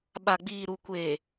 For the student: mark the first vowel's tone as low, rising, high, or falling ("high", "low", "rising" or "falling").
low